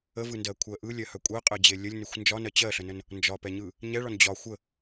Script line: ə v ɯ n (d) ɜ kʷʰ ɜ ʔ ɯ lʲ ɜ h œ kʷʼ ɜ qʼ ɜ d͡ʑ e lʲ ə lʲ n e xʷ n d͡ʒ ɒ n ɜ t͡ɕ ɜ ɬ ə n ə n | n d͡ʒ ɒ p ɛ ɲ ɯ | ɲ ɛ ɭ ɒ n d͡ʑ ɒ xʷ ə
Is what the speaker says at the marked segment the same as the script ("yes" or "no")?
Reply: yes